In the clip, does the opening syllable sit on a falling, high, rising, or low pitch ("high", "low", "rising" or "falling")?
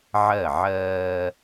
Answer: falling